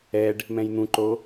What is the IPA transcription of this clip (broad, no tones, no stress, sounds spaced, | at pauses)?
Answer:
ɛ ɖ | m ɛ̃ j n̪ ũ ǃ o